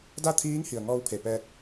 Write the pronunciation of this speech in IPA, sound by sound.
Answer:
d a˥˨ t̪ʰ iː˧˥ ŋ h i˩ ə̯ ŋ ɔː˧ w pʰ e˩ p ɛː˧ t̚

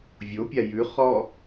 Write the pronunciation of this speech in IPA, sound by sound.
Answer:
vʲ o pʲ a j ʉ χ ɔ

